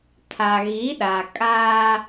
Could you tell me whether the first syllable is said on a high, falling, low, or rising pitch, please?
low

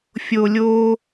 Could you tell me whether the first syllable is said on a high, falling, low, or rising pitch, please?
low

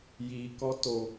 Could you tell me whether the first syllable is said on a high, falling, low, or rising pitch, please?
low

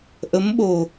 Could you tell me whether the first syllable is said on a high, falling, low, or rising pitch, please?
rising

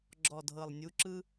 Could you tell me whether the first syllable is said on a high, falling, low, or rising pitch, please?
low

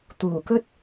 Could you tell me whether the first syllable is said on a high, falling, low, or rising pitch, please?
low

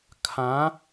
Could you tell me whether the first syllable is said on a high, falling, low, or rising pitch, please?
rising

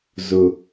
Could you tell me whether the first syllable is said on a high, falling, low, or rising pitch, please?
high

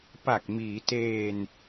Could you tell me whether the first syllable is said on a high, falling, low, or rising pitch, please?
low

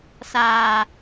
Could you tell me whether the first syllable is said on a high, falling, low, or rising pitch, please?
low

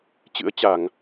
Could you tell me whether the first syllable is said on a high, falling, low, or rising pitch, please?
rising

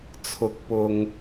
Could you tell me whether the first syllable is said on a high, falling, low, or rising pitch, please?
rising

